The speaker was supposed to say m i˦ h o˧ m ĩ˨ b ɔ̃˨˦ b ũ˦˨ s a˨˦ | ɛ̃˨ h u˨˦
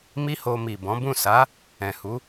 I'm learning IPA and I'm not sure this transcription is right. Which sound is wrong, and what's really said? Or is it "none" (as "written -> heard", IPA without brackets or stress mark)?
ĩ˨ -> i˨